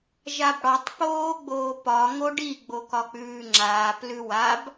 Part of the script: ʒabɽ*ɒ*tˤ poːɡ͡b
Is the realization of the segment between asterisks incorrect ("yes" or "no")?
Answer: no